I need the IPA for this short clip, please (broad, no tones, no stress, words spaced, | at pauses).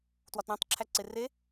twɒtɾæ̃tˤǁʰæ ǀere